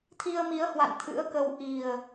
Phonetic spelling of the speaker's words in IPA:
t̪ʰ i˧ ə̯ m i˨˦ ə̯ h w a̰˧˨ n t̪ʰ ɨ̰˧˥ ə̯ k ə˧ w ʔ i˨˩ ə̯

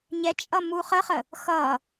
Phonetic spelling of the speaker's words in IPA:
ɲ ɛ t͡ʃʼ ʌ m u χ ə χ ə | x ʌ

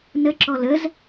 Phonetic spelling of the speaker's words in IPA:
n ə ǁ ɔ l ə z

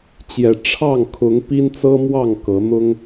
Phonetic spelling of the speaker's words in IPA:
t͡ɕ j ɛ˨˩ ʈ͡ʂʰ ɑ˥˨ ŋ kʰ ʊ˨˦ ŋ p i˦ n t͡s ɤ˦ m w ɑ˥˨ ŋ k ɤ˨˦ n̪ ʊ˦ ŋ

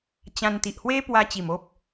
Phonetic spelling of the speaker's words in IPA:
t͡ɕ ã˧ n t̪ i˨ ʔ h w e˦ p w a˧ t͡ɕ i˨˩ m o˦ p̚

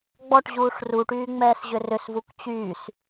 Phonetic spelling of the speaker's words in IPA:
ɡ͡b ɔ ʈ ʑ uː ʂ r u ʈ yː ŋ͡m ɛː s ʑ ʏ r ʏ s v u k t͡ɕ yː s

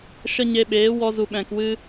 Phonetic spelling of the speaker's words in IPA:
ʃ ə˧ ɲ e˧ ɓ eː˨˦ w ɔ˧ z u˨ ɓ ɛ̃˨ k w ɨ˧

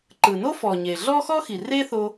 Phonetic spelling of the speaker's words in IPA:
ǃ ɯ˩ n o˥ f ɔ˩ ɲ e˩ ɮ ɔ˥ x ɔ˥ x i˩ r e˥ θ o˧

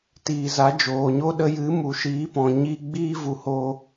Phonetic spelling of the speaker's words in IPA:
t iː˨ z a˨˦ d͡ʒ oː˨ ɲ o˦ ɗ ə˧ j ɨ˨˦ m u˨ ʃ iː˨˦ p ɔ̃˨ ɲ iː˧ ɡ͡b iː˦ v u˨ h o˧

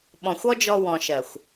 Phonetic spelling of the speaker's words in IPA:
ɓ ɔ̃˨ xʷ ɔ˦ d͡ʒ ɔ˧ w ɔ̃˨ ʃ ɜ˨ xʷ

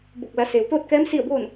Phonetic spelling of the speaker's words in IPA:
b o˧˩ k̚ l a˩˧ s eː˩ w t̪ oː˥˨ t̚ k ɛː˧˥ m s i˥˨ ə̯ b oː˥˨ n

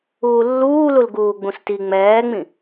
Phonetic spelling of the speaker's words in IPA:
uː lː uː l u l ɡ uː ɡ͡b ũ s t i ŋ͡m ɛː ŋ͡m ĩ

